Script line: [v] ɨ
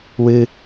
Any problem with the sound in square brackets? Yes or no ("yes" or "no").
yes